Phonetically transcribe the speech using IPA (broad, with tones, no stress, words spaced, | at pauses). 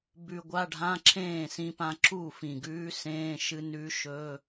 bʉ˧ɡʷa˧˥˧ɖʱã˧˥˧ ǁʰẽː˥˩sĩ˧pã˧ ǁu˥˩fĩ˨˩ɡʉː˧˥ sẽː˧˥˧ʃɨ˧˥ nʉ˧˥ʃɵː˧˥˧